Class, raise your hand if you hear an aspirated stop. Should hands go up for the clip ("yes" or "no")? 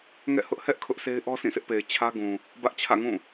yes